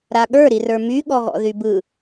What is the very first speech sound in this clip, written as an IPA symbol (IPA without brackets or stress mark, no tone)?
ɾ